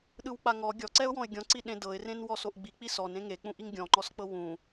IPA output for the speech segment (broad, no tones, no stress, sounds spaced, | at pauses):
ɗ ɯ w k͡p a ŋ ɔ ɡʲ ɔ ǀ ɛ ʊ̯ w ɔ̃ ɪ̯ ɡʲ ɔ̃ ǀ i ɗ ẽ d ɤ ɪ̯ r ẽ n w ɔ s o ʔ ɡ͡b i k͡p i s ɔ n ẽ ŋ e k͡p ũ ʔ i ŋ ɡʲ ɔ̃ ŋ͡ǃ ɔ s k͡p ɤ w ũ